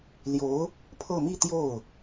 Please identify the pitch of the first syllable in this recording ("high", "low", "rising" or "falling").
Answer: rising